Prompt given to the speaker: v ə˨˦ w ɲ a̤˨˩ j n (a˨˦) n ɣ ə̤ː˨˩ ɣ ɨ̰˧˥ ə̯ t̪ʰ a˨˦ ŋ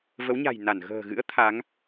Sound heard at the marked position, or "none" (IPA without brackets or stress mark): a˧˩